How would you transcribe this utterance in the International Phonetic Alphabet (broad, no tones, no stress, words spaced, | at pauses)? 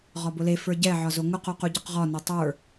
ʁɒbʊle fə˞ɟɛ ʕɒzoŋʊq oquɟɒqʁɒ netˤə˞